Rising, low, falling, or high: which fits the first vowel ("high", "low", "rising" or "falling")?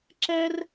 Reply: high